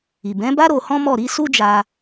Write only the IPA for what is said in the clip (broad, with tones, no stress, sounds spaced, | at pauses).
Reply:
i˨ b ɛ̃˨˦ b a˦ ɾ o˧ h ɔ̃˦ m ɔ˦˨ ɾ i˨˦ s u˦ d͡ʒ a˧